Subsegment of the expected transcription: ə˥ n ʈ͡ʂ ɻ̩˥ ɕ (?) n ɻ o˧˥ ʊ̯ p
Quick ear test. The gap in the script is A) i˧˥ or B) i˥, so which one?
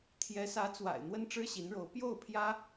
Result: A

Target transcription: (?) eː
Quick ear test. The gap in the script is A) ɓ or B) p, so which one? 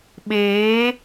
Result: A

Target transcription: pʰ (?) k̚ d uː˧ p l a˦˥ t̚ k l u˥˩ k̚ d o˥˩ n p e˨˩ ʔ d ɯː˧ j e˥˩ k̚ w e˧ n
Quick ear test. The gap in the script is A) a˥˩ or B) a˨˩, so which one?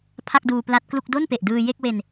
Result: A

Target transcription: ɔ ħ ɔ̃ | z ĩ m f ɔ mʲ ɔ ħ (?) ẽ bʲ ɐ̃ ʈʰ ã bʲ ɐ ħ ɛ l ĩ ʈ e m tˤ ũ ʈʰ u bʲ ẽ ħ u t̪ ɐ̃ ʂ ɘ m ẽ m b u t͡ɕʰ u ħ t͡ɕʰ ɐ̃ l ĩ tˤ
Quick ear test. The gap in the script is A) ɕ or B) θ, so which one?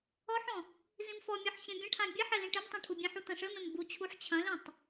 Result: A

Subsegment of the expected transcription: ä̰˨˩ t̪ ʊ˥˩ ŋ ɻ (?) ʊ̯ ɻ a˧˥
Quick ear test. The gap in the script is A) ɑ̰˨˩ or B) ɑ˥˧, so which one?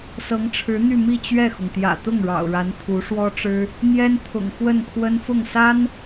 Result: A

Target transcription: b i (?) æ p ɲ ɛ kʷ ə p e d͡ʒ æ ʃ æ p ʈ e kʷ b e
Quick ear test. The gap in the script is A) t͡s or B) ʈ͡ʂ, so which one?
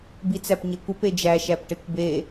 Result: A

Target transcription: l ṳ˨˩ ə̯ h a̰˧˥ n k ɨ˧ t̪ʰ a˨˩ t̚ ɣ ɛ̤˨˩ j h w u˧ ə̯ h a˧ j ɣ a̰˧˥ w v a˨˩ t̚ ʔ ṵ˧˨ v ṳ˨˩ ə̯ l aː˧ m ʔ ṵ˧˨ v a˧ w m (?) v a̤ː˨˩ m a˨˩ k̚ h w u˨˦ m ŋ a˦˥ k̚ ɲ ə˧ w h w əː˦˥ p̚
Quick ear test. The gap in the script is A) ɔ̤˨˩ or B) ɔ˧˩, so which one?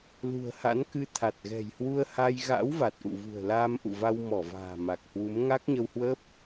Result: B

